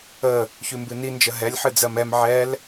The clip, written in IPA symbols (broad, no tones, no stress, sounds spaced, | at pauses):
ə | ç ʉ m b ɨ n i n d͡ʒ ə ɦ ɛ lʲ ħ ɨ d͡z ɜ m ɛ m ʕ ɛ l